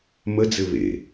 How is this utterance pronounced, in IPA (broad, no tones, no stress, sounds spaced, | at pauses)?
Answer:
m ə d͡z ɘ β ḛ